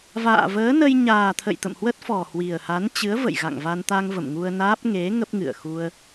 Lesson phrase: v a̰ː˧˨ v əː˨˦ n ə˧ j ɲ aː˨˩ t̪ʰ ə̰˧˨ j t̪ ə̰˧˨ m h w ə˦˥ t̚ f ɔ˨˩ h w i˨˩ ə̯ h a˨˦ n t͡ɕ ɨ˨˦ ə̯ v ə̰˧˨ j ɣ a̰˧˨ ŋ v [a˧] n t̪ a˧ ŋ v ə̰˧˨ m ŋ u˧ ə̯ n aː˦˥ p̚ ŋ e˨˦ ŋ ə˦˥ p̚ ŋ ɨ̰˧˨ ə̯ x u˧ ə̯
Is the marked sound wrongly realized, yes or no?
no